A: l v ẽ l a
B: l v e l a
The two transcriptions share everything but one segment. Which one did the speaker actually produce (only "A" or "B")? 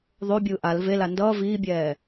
B